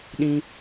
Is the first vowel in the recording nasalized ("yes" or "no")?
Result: yes